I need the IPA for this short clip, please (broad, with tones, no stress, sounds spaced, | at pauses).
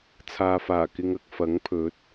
t͡sʰ aː˨ f aː˨˩ k ɪ˧ ŋ ɐ˨ k̚ f ɐ˨˥ ŋ pʰ ɵ˨˥ t̚